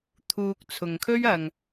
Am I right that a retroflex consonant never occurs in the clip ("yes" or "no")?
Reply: yes